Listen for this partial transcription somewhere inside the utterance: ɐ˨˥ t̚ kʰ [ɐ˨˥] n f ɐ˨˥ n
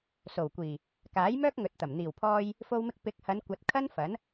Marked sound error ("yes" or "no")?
yes